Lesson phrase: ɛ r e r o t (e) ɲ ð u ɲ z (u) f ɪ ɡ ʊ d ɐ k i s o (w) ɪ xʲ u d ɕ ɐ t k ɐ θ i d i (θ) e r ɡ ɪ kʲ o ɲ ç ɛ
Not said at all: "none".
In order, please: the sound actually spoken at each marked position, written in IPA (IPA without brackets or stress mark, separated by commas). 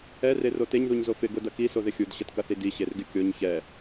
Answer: e, o, ð, ɕ